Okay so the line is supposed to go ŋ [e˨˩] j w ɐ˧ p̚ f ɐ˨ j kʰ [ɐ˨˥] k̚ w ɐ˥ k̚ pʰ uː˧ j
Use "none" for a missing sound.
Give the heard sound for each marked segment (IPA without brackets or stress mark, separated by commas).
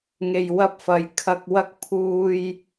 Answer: e˨, ɐ˧